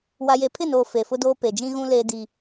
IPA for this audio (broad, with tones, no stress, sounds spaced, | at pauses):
w a˨ j e˨ pʰ ɪ˦˨ n oː˨ f e˨ f ʊ˦ d oː˦ p e˨ d͡ʒ ĩ˦ ɣ ũ˦ l e˦ d i˦